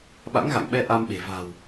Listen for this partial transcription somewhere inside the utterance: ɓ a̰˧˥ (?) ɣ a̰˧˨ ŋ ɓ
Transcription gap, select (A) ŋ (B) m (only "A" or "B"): A